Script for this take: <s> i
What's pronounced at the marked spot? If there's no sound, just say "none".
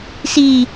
s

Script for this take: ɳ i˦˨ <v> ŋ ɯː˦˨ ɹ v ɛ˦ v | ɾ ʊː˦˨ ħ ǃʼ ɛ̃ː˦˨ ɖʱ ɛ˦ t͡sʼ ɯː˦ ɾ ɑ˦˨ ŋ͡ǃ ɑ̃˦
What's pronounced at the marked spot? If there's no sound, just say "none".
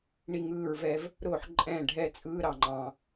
none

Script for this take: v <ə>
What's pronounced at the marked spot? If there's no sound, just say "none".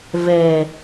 ɛ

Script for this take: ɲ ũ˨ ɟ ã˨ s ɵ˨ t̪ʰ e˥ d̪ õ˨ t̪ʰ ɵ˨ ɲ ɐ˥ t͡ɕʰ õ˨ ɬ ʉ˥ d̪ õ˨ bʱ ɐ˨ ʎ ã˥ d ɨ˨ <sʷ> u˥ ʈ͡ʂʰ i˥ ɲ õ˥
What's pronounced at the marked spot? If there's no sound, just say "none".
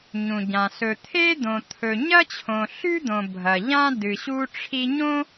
ɕ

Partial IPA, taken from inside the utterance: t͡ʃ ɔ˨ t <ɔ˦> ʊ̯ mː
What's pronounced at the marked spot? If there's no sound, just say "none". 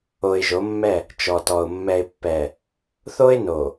ɔ˨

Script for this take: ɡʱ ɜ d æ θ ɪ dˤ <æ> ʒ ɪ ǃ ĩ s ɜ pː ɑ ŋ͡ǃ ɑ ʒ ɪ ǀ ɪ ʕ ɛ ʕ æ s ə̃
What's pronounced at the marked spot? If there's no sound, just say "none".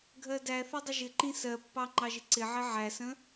ə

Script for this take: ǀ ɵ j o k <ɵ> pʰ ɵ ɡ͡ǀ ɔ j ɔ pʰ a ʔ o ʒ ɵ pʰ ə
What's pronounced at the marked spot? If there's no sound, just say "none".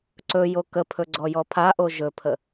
ə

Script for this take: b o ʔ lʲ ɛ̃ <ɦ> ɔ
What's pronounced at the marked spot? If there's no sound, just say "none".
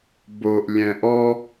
ʔ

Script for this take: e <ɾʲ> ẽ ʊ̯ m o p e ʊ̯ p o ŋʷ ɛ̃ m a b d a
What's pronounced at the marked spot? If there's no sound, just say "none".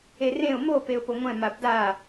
r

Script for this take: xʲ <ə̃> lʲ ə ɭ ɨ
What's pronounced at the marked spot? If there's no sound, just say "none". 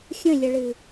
ə̃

